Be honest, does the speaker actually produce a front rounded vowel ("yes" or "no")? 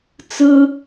no